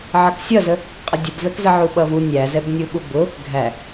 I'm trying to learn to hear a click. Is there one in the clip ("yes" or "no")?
no